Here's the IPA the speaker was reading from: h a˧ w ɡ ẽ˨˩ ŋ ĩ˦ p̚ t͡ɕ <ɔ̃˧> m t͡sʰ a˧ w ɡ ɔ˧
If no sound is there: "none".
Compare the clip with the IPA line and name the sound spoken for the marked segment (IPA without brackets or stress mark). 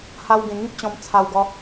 ɔ̃˧